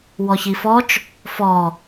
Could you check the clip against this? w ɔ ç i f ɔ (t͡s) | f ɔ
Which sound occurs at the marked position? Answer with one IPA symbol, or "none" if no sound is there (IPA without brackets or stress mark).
t͡ʃ